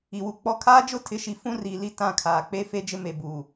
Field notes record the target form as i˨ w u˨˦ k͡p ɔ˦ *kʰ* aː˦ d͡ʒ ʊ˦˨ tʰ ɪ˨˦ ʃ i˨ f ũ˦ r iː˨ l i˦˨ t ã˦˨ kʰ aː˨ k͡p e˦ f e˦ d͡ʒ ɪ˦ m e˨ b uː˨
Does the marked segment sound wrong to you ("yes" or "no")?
no